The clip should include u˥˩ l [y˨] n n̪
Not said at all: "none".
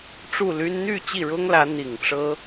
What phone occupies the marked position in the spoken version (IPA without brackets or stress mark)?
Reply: y˥